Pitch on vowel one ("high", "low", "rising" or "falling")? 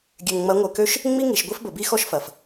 low